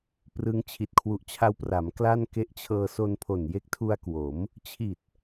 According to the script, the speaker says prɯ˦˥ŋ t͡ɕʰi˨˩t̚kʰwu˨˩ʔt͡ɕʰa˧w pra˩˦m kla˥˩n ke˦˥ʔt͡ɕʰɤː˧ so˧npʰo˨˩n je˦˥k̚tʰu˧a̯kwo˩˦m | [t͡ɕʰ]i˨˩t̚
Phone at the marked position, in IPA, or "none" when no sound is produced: t͡ɕʰ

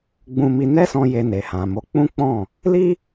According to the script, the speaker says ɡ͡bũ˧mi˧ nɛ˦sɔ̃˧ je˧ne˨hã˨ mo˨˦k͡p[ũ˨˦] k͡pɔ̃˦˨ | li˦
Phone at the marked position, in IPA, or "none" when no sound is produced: ũ˦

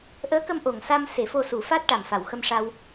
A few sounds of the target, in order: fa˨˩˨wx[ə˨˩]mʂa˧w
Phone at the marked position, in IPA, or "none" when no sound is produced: ə˧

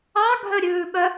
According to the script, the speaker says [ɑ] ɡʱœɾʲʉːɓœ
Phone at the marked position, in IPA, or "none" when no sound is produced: ɑ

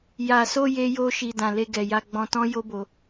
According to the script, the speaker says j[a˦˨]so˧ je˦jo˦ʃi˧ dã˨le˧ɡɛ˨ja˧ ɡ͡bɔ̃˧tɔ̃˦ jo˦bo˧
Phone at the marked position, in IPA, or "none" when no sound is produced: a˨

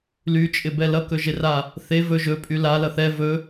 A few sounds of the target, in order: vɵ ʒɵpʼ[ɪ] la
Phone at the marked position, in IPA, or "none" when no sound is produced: y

